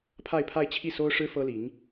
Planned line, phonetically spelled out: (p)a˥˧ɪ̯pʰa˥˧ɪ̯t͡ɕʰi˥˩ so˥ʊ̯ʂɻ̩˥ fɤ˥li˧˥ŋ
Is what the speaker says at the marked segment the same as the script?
no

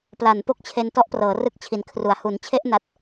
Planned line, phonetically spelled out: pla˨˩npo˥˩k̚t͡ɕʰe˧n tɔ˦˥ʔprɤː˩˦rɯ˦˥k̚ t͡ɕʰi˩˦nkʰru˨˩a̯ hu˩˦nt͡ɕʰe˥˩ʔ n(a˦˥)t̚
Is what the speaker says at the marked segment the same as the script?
yes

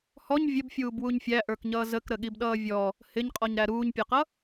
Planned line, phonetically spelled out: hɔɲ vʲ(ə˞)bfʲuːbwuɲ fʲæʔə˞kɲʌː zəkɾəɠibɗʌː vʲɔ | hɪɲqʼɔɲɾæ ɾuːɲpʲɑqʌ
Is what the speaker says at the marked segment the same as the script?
no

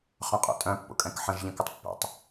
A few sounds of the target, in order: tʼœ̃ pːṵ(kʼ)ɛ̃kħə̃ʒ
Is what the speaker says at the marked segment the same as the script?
yes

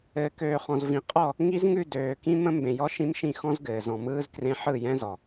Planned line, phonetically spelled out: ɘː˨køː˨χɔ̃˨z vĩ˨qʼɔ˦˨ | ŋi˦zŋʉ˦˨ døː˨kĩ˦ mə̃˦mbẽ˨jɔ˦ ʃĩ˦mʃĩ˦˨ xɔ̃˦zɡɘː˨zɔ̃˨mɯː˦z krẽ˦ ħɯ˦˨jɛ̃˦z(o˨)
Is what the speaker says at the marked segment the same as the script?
no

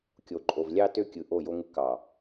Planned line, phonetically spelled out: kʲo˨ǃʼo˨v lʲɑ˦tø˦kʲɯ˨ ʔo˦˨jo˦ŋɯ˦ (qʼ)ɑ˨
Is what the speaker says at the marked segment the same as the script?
no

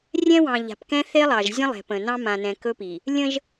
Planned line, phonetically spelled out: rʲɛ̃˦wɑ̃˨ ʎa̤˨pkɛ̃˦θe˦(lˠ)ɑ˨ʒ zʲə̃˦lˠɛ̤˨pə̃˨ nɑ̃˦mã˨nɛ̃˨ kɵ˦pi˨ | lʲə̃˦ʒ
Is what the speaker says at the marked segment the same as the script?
yes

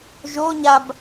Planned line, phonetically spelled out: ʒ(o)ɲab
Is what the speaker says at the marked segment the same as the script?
yes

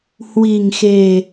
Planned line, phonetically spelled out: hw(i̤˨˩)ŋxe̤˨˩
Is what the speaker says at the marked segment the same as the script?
yes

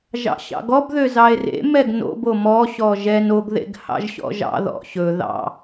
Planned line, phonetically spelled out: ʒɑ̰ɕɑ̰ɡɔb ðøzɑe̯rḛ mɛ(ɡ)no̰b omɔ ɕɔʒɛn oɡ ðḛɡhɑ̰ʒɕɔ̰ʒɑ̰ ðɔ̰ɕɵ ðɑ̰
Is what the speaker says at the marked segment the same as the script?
yes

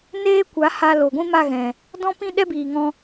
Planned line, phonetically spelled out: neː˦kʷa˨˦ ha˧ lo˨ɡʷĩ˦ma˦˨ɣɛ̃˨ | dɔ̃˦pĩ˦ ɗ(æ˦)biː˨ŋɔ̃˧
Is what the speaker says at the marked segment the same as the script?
no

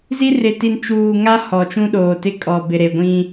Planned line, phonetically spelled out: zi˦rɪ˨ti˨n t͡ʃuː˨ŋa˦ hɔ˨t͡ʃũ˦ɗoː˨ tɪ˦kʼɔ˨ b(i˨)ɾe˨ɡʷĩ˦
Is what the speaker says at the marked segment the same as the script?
no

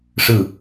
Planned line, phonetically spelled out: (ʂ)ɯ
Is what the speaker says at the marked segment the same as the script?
yes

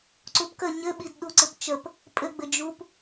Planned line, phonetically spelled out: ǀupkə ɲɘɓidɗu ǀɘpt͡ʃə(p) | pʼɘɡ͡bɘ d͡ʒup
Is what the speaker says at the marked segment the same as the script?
yes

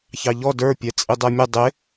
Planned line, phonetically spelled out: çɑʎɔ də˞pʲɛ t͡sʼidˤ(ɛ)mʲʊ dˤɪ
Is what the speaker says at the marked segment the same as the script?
yes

